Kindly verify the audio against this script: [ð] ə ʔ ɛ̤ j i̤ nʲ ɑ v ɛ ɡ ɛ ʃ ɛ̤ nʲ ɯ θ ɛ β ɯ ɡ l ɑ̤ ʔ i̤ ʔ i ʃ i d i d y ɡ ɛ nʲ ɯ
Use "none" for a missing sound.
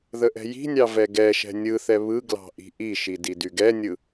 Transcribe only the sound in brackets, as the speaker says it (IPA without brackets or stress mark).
ð